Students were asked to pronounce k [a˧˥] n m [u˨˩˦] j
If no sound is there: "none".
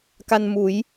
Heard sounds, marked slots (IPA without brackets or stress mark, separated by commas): a˧, u˨˩˦